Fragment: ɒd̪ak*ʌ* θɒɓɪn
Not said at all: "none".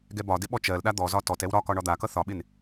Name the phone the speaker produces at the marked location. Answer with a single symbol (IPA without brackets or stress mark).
ʌ